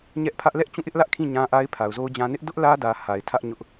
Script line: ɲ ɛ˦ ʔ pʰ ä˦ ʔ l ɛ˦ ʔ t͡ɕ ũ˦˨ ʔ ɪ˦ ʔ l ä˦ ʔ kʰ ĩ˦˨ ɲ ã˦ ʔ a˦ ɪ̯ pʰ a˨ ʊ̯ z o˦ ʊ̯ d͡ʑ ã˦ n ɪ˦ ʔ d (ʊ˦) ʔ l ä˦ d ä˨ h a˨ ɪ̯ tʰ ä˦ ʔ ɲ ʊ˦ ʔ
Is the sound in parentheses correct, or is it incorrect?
correct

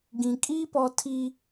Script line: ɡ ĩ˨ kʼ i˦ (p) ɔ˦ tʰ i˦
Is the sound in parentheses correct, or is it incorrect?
correct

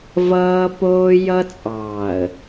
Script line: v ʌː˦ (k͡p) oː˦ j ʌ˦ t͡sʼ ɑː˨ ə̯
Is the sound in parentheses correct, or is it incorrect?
incorrect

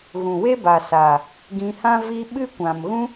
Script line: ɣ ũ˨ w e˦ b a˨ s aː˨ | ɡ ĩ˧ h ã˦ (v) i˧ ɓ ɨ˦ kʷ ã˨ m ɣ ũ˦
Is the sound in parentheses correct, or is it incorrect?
correct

